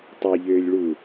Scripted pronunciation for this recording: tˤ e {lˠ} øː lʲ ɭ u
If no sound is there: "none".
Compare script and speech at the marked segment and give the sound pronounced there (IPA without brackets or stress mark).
ʎ